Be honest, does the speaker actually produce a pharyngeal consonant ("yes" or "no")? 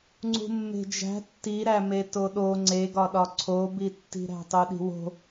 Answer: no